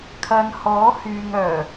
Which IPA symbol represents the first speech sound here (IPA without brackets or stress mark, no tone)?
kʰ